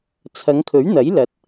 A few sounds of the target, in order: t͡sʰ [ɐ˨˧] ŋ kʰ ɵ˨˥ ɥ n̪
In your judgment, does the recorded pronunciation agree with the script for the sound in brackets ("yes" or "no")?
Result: yes